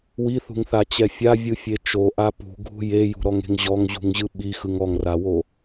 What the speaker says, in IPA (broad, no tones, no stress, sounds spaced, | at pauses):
w i θ ṳ ŋ θ a t͡ɕ ɛ fʲ a vʲ ɯ fʲ e t͡ʃ o ʔ a p ṳ ɡʱ ṳ j e j ṳ ɾ ɔ ŋ e̤ ŋ ʑ ɔ ŋ ʑ ṳ ŋ ʑ ɯ ɓ i x ɯ ŋ ɔ ŋ r a w o